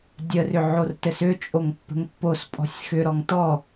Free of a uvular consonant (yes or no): yes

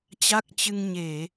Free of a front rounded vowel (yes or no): yes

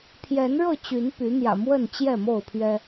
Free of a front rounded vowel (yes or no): no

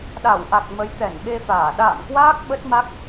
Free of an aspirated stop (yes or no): yes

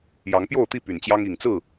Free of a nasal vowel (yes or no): yes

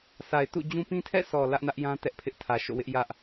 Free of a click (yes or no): yes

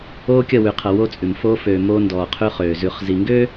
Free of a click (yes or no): yes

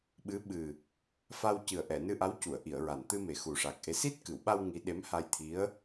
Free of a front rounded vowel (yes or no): yes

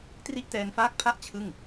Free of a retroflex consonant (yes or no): yes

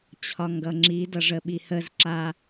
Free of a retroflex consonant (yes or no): no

